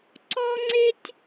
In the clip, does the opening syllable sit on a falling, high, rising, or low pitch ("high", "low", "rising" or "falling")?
high